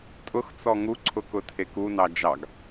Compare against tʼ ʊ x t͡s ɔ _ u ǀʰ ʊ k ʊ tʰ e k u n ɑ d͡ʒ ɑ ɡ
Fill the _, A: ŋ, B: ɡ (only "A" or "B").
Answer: A